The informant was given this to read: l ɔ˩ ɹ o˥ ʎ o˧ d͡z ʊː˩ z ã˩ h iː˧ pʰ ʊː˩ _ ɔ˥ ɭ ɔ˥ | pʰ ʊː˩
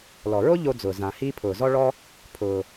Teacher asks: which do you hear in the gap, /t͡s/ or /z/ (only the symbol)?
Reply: z